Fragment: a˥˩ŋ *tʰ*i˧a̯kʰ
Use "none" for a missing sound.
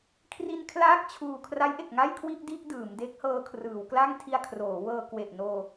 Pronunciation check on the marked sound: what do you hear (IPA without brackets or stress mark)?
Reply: tʰ